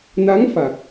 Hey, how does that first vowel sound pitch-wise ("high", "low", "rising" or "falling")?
rising